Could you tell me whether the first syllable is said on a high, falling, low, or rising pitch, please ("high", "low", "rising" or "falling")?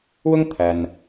high